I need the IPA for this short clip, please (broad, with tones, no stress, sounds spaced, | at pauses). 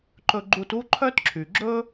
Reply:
ǃ ɵ˧ ɡ͡ǃ u˧ t u˥ ǃʰ œ˥ t ǁʰ y˩ ɡ͡ǁ ɵ˥